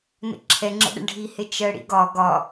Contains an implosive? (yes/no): yes